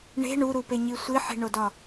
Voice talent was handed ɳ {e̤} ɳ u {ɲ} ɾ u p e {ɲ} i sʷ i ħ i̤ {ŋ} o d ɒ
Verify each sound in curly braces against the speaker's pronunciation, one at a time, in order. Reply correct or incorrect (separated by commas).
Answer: correct, incorrect, correct, incorrect